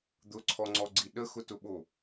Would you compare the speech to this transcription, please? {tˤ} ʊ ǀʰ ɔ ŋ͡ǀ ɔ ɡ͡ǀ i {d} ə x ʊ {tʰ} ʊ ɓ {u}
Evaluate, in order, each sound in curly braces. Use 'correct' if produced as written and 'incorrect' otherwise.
incorrect: d̪, incorrect: ɗ, incorrect: t, incorrect: o

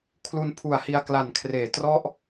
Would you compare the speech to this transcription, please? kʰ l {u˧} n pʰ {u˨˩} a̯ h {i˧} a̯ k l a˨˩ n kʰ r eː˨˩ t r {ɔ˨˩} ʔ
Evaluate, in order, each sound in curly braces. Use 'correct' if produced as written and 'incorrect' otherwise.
correct, correct, correct, incorrect: ɔ˦˥

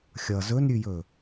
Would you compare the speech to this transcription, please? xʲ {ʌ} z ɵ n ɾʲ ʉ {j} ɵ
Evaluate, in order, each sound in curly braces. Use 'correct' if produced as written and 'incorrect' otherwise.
correct, correct

